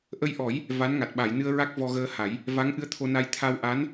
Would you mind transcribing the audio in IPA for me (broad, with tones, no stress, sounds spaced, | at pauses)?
ʔ ə˧ j ʔ ɔ˨˩˦ j | v a˧˥ n ŋ a˨˩ t̚ ɓ a˨˩˨ j n ɨ˧ ə̯ ɹ a˦˥ k̚ v ɔ˧ ɣ əː˧ h a˨˩˦ j | v a˧˥ ŋ ʔ ɨ˧ ə̯ t̪ʰ o˧ n a˧ j t̪ʰ a˧ w ʔ a˧˥ n